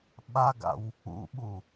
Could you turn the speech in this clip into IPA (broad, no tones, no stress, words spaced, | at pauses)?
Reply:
ɓaɡa̰w | ṵɓu